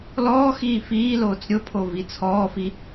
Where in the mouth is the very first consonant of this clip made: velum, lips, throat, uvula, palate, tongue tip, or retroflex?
tongue tip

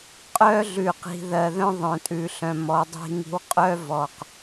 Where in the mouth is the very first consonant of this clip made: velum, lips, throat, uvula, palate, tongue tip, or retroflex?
uvula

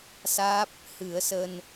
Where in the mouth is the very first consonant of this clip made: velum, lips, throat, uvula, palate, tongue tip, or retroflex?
tongue tip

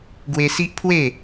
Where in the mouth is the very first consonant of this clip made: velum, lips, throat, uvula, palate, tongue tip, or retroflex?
velum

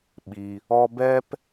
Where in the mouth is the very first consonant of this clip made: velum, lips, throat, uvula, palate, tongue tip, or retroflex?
lips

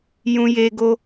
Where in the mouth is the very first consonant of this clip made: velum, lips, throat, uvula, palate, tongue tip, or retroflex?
palate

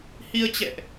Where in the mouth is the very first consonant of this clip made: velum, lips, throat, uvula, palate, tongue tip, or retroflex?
throat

